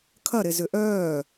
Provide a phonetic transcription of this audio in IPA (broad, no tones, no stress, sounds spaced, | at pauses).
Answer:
kʰ ɐ ɾ e z ʏ ʔ œː